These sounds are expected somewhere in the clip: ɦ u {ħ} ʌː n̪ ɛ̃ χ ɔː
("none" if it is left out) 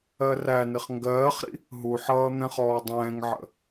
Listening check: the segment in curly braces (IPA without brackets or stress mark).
ħ